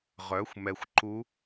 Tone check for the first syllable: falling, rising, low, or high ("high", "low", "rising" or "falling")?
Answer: rising